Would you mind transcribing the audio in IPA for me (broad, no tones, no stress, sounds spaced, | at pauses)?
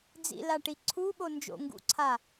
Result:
d͡z ḭ l a ʈ i ǀʰ u ɓ o n d͡ʒ o̰ ŋ ɡ ṵ ǀʰ a